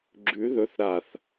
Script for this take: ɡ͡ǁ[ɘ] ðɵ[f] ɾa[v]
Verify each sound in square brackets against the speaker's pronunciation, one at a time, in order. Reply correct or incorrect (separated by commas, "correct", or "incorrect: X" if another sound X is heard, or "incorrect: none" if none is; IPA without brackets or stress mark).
incorrect: ʉ, incorrect: θ, incorrect: θ